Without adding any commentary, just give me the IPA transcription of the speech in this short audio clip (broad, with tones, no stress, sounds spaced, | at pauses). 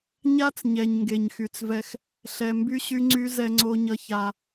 ɲ a˦ t͡s ɲ ɛ˨ ɲ ŋ ɡ e˨ ɲ x y˨ t͡s v ɛ˦ x | ɬ ɛ˨ m b y˦ ɕ y˦ ŋ͡ǀ y˦ z ɛ˦ ŋ͡ǀ o˦ ɲ ʌ˦ ç a˦